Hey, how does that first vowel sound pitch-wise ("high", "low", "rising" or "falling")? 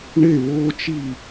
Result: falling